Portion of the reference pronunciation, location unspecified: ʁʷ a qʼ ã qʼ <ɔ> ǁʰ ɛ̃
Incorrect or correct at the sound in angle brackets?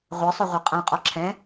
correct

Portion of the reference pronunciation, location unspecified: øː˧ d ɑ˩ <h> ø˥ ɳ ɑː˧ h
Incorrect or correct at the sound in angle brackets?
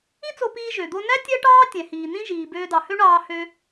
correct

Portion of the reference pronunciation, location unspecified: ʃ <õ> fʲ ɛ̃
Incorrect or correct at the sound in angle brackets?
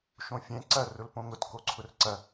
correct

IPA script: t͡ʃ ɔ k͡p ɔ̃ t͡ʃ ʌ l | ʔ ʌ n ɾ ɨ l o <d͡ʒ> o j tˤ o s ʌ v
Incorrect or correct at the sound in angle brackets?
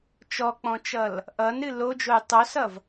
correct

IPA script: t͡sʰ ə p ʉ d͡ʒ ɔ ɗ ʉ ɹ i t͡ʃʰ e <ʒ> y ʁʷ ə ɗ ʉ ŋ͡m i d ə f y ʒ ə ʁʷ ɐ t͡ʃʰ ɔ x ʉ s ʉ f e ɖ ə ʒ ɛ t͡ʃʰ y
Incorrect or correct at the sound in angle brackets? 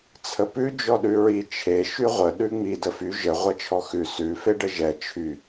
incorrect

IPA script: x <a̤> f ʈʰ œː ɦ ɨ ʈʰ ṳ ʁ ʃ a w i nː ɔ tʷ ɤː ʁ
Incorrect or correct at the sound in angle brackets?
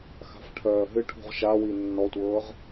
correct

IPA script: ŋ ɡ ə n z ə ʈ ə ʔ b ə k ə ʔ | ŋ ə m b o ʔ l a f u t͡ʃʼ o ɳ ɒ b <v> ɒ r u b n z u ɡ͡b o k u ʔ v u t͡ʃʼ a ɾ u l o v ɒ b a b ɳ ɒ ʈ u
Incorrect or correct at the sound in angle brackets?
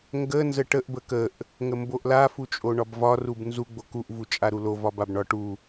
correct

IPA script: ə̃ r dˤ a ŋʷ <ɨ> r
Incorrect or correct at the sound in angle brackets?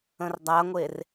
incorrect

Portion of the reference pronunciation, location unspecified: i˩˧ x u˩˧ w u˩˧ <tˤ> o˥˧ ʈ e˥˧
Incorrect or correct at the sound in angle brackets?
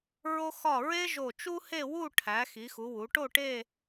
incorrect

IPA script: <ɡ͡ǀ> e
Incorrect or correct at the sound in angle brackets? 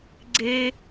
correct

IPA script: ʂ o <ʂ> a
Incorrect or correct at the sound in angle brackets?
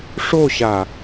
incorrect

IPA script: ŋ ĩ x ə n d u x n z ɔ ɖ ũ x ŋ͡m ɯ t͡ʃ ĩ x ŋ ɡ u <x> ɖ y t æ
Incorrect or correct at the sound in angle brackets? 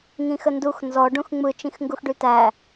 correct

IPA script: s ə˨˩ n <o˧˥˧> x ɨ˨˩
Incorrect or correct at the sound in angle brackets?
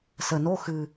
correct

